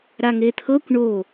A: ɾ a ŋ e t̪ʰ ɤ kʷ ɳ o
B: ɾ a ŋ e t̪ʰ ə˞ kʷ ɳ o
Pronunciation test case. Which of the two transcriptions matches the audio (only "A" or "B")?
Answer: A